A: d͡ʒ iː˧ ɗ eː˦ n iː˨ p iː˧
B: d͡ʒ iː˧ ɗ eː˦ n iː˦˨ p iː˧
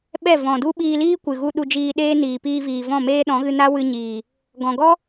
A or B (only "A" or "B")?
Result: A